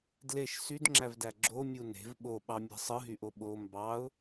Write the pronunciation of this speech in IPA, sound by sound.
d l e ʃ s y d ŋ͡ǁ æ v d æ ɡ͡ǁ o mʲ u n e̤ v ɓ o ɓ ɑ mʲ æ̤ sˤ ɯ ɦ y ʔ o ɓ o m b ɑ ʊ̯

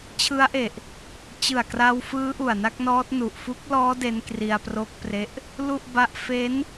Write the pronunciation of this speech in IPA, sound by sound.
t͡ɕʰ ɯ˦˥ a̯ ʔ e˨˩ ʔ | t͡ɕ ɯ˨˩ a̯ k r a˧ w f ɯː˦˥ ʔ u˨˩ a̯ n a˥˩ k̚ n ɔː˦˥ t̚ n u˨˩ ʔ f u˦˥ k̚ l ɔː˦˥ d e˦˥ n k r i˧ a̯ p r o˦˥ k̚ p r e˦˥ ʔ | l u˥˩ ʔ b a˦˥ ʔ f e˦˥ n

